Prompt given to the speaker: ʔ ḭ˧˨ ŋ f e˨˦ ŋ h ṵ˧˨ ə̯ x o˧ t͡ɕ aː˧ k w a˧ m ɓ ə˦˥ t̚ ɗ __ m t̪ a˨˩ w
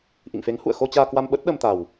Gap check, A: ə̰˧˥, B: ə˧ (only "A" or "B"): B